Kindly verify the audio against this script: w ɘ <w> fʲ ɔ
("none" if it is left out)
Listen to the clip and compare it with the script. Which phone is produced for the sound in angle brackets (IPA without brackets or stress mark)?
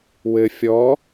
none